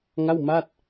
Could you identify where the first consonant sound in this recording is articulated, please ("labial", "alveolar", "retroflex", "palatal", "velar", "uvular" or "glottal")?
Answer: velar